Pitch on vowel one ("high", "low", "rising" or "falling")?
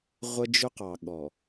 high